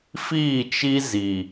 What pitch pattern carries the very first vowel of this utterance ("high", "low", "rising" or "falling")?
falling